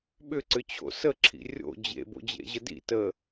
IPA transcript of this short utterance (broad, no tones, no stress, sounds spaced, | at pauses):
ɓ ʏ ǀ ʏ t͡ɕʰ o̰ s ə ǁʰ ḭ rʲ o̰ d͡ʑ ḛ b o̰ d͡ʑ ḛ ʑ ə d ḭ t ə